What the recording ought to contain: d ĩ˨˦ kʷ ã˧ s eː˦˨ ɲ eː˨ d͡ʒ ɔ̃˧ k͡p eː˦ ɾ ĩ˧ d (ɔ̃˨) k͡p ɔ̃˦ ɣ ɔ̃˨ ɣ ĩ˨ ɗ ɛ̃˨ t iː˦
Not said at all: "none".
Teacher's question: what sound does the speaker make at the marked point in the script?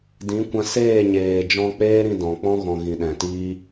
ɔ̃˨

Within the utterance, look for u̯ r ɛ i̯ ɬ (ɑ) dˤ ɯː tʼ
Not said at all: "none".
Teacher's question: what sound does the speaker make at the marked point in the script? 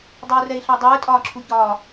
ɑ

